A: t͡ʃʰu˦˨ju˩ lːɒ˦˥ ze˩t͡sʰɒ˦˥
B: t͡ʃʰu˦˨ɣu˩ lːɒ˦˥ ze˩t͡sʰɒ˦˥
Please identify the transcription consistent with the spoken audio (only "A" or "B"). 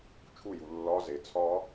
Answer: A